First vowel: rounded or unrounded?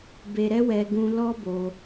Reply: unrounded